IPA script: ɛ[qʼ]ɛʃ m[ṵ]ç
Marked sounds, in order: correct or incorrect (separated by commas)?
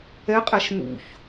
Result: correct, correct